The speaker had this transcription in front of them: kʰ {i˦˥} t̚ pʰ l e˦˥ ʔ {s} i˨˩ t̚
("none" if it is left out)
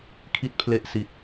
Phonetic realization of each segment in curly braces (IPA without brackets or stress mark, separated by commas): i˦˥, s